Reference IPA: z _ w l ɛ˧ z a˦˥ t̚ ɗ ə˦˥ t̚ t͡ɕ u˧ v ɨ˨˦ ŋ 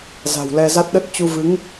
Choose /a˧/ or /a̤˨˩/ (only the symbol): a̤˨˩